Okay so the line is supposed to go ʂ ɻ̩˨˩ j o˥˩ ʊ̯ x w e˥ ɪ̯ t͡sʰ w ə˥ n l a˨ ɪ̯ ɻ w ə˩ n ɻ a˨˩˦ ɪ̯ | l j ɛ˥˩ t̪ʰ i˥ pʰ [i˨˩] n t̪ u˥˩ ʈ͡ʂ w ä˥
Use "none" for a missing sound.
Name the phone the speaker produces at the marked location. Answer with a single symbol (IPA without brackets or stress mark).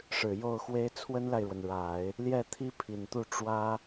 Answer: i˨˩